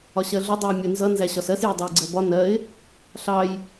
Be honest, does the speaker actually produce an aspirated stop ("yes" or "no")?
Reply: no